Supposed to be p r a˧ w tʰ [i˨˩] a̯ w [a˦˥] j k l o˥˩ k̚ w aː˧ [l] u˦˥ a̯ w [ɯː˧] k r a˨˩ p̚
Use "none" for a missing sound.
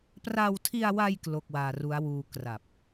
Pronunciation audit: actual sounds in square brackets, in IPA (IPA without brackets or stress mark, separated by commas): i˧, a˧, r, uː˧